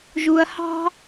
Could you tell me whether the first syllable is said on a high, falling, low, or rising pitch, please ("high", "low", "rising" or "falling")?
low